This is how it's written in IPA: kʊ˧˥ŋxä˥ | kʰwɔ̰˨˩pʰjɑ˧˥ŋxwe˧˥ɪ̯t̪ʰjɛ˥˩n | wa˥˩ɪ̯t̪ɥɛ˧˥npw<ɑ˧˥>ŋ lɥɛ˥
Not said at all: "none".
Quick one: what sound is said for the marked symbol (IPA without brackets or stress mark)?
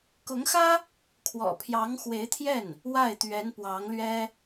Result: ɑ˧˥